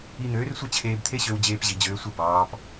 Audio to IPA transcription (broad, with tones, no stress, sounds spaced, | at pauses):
i˧ n̪ øː˩˥ r sʷ ɯ˥˩ t͡ɕʰ eː˧ b t̪ʰ e˥ ɕ ø˧ w d͡ʑ eː˧ p ʑ i˩ d͡ʑ øː˩˥ sʷ ɯ˥˩ b ɑː˩˥ p